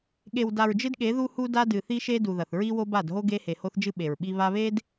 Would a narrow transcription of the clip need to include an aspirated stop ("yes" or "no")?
no